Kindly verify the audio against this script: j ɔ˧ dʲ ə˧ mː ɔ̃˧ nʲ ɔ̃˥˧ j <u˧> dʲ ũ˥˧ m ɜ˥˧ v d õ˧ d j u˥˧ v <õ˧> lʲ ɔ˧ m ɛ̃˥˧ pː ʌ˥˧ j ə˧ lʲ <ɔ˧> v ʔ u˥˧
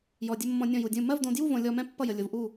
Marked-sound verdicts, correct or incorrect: correct, correct, incorrect: o˧

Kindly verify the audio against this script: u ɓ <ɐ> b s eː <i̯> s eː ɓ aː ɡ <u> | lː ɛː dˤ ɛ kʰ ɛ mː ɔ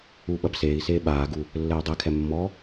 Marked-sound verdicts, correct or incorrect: correct, correct, correct

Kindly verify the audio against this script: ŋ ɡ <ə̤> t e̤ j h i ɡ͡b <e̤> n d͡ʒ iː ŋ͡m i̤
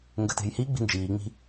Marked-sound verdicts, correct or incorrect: correct, incorrect: i̤

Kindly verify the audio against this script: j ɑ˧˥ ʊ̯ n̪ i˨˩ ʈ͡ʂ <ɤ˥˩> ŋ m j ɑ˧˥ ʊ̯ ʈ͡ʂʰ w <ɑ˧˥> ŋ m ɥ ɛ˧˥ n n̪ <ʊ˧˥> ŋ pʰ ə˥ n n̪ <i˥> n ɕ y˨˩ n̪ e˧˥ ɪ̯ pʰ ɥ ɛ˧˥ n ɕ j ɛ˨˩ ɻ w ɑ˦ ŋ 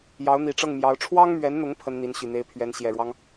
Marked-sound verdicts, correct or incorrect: correct, incorrect: ɑ˥, correct, incorrect: i˧˥

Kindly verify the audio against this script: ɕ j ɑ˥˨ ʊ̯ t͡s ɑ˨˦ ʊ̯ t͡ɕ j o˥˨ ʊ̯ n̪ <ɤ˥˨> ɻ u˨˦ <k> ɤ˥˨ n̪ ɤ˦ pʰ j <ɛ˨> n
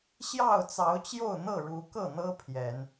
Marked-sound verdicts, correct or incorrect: correct, correct, incorrect: ɛ˨˦

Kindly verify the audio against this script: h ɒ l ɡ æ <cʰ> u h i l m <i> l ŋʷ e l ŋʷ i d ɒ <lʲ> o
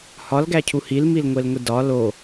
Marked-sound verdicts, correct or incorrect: correct, correct, incorrect: l

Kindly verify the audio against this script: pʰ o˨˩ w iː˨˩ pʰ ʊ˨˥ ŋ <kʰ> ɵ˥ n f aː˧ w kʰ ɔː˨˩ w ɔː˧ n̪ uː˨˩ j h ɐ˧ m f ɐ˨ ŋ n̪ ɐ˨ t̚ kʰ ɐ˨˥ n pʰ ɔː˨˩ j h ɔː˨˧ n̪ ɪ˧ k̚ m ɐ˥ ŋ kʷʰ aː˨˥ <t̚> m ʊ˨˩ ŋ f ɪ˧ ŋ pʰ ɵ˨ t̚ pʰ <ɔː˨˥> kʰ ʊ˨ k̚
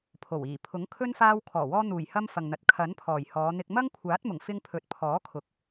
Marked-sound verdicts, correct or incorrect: correct, correct, correct

